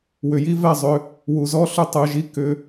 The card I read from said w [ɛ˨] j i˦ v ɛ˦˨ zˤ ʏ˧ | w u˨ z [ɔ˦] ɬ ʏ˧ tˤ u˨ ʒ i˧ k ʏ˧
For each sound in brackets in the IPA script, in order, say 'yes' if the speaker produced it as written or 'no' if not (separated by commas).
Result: no, yes